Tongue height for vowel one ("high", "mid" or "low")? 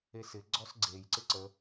mid